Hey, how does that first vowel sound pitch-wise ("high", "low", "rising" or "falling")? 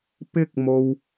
high